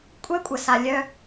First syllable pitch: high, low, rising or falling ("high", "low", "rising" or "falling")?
high